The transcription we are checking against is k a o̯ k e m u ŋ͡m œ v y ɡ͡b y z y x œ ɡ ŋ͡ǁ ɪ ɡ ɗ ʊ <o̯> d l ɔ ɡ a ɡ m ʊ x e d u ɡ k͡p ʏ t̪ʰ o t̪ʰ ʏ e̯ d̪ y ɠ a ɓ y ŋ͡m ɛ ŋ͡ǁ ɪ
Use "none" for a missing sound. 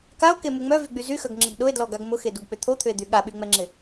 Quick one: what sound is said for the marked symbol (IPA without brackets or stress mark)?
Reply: e̯